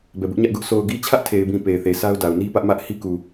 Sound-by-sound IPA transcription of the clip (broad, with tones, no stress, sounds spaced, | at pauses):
b ɛ˨ b ʊ˦ ʔ ɲ ä˦ ʔ ɡ ʊ˦ ʔ s o˨ ʊ̯ ɡ i˦ t͡ɕʰ ä˦ ʔ tʰ e˨ ɪ̯ b ĩ˨ p e˨ ɪ̯ θ e˨ s a˦ ʊ̯ d a˨ ʊ̯ n i˦ p ä˦ ʔ m ä˦ ʔ h i˦ k u˨